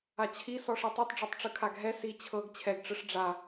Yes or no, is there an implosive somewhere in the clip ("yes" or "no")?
no